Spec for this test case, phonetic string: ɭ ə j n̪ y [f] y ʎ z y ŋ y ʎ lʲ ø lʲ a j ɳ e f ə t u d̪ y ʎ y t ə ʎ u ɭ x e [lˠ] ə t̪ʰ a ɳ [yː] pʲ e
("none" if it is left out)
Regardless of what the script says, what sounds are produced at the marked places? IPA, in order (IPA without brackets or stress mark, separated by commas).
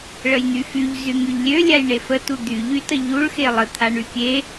f, lˠ, y